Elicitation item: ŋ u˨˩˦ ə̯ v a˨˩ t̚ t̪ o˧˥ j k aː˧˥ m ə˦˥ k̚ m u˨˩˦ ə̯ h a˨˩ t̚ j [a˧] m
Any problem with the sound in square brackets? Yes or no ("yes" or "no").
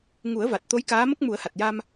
no